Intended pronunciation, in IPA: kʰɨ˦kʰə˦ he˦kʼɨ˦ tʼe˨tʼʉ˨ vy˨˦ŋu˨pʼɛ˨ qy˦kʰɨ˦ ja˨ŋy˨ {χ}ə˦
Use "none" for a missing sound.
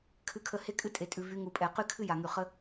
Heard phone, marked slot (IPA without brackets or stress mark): χ